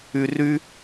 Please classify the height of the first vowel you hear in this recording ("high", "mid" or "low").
high